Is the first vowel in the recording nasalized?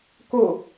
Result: no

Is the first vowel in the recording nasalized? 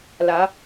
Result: no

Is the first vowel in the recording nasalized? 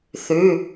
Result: no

